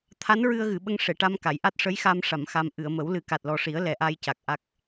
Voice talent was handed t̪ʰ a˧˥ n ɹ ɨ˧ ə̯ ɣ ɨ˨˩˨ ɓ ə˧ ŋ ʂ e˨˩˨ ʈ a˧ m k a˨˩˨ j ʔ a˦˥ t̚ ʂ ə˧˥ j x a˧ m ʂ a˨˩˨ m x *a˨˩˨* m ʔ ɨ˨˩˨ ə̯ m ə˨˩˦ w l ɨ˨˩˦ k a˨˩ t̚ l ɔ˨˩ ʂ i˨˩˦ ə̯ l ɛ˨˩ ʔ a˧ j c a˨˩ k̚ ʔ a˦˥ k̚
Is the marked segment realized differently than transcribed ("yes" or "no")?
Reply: yes